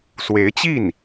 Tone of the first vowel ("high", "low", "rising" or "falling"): rising